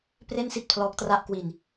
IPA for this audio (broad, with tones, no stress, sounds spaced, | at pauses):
p r e˥˩ n s i˥˩ t̚ pʰ l ɔː˦˥ k̚ t r a˥˩ ʔ k w i˧ n